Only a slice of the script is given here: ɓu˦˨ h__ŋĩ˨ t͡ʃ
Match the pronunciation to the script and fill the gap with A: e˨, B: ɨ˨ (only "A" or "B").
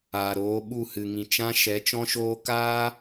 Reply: B